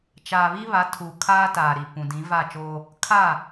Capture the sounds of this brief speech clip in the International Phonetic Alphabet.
t͡ʃaː˨βi˦βa˨˦ tʰu˨kʰaː˦ taː˨ɾi˨pũ˨ dĩ˨˦va˦˨t͡ʃoː˦ | kʰa˦˨

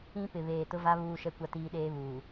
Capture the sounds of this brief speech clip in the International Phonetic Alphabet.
ĩ˦ pɪ˨βeː˨tʊ˦va˦ βuː˦ʃɛ˦ kʷa˦tiː˦ɗeː˦βuː˨

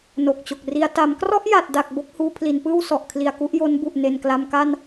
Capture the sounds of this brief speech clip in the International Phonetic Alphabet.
no˨˩k̚t͡ɕo˨˩k̚ri˧a̯ ta˩˦mkrɔ˥˩ʔja˨˩t̚da˨˩k̚ bo˦˥k̚huː˧pʰli˩˦npɯː˥˩w sɔ˨˩ʔkʰli˨˩a̯ku˥˩ʔjo˦˥n bu˨˩ʔne˨˩nkla˧mka˥˩n

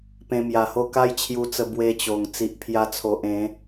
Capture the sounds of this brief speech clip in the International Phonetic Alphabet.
pẽ˧mja˨˩ho˥˧ ka˦jt͡ɕʰju˧t͡sə˧ bwe˧t͡ɕo˨˩ŋ t͡si˨ʔpʰja˧t͡sʰo˨ʔ ẽ˨˦

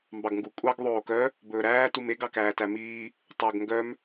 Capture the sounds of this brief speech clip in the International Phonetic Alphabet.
mbɑɡŋɡu kʷʼɑɡ ðˤoːkœ | bɵːɾæː tumeɡ ɑkæːtæmiː | tˤoɡ ŋɡœm

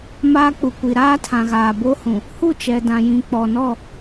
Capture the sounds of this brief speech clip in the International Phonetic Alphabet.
maː˦k͡pu˨kʷi˨ ɾaː˦tʰã˨ɣaː˨ bo˦hũ˨ | hu˦˨t͡ʃɛ˨dã˨jĩ˨ k͡pɔ˨nɔ˦˨

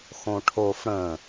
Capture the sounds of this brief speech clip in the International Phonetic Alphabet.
xõʈʰof ɽə̃

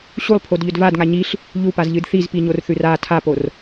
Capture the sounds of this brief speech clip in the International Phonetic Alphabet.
ɕulˠpʰodʎɵd vadŋa ɲiɬ | ʎupazʎɨd θizpiɲorθʉr a tʰapor

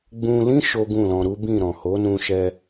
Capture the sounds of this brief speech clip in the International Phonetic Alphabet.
ɡ͡bũ˧lĩ˦ ʃo˦ɡũ˦˨lɔ̃˧ ɾu˦bĩ˦˨ɾɔ̃˨ ho˨˦nũ˧ʃɛ˧

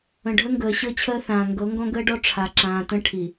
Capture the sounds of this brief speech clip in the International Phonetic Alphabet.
ə̃˨ ɖʱə˦ŋɡəː˨ ɕɤ˦t͡ɕʰəː˦θãː˨ ŋɡɤ˨˦ŋɡɔ̃˦ɡəː˦ɖɔ˦ ʈ͡ʂʰa˨ǁãː˨tə̃˦ ʈʰi˨

